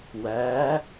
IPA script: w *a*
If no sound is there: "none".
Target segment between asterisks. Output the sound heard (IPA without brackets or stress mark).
æ